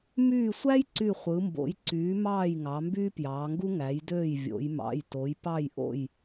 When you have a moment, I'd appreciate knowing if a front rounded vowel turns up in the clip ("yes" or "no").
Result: yes